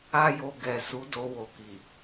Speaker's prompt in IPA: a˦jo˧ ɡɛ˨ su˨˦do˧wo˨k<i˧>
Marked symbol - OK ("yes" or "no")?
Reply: no